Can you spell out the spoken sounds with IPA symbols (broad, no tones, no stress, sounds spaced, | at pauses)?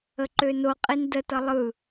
ə ǃ ø n o qʼ i n d ə t ʌ lˠ ɯ